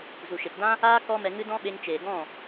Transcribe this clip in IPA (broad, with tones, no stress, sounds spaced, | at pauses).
z u˨ ʃ e˨ p d ã˦ | aː˦ k ɔ˦ m ɛ˧ ŋ ɨ˦ d ɔ̃˦ ɓ e˧ ŋ t͡ʃ eː˨ ɡ ɔ̃˦˨